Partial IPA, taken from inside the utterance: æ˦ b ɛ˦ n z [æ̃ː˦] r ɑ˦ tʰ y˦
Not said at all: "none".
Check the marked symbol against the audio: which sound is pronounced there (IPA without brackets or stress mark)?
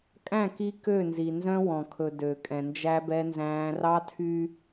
æ̃ː˦